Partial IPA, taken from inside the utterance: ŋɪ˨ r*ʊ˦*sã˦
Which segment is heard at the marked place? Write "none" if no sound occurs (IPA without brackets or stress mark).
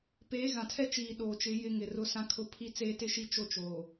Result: ʊ˦